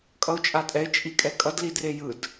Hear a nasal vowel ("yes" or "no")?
no